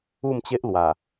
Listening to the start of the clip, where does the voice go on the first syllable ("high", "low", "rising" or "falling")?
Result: falling